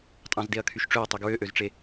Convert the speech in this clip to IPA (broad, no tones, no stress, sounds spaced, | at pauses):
tʼ ɑ̃ z d e ɐ̯ kʰ y ʃ ʈ͡ʂ ø ɐ̯ tˤ e ɡ ɹ ø ʔ ø z ʈ͡ʂ e